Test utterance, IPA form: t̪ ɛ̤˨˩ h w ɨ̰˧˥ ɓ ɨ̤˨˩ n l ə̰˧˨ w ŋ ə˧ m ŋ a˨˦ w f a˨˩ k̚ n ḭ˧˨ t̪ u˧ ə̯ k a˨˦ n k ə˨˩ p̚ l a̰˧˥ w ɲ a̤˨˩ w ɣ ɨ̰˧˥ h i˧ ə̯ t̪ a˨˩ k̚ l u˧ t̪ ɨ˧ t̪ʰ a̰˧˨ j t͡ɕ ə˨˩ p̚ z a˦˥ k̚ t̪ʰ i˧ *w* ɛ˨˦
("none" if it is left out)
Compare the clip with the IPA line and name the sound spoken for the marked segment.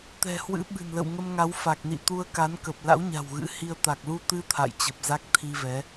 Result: v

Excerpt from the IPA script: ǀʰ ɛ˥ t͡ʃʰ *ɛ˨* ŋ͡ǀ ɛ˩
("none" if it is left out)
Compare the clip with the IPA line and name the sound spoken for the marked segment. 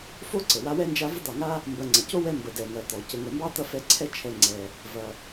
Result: ɛ˨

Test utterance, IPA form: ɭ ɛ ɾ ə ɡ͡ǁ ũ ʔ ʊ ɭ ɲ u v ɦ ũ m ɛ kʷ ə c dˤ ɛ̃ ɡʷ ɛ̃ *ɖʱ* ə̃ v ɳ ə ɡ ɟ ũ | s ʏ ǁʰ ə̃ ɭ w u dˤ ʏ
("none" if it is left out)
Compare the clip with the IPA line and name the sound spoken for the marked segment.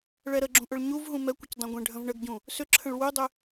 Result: ɖʱ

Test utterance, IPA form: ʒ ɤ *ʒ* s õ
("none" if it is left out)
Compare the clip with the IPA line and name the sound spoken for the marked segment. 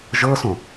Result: none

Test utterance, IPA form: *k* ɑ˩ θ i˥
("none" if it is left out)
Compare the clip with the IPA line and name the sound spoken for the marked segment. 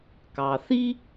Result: k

